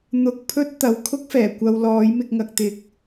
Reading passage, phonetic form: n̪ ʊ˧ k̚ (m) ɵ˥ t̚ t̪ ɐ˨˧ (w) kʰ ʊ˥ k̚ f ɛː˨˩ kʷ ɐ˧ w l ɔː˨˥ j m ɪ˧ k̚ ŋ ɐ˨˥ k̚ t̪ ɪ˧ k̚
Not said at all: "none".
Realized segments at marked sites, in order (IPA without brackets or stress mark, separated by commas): pʰ, w